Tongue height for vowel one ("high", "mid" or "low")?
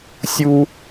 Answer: high